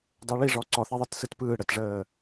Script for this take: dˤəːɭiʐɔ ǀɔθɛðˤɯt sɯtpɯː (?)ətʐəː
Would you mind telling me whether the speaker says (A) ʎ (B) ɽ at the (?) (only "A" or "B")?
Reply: B